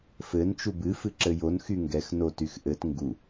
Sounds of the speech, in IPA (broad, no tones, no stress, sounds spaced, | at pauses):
f ɘ n t͡ʃ u b ɨ f ɨ ǁ ɘ j o n x y ŋ ɡ ɛ x n o t y x ʔ ɘ t ŋ ɡ u